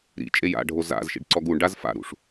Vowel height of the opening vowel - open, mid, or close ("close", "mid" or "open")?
close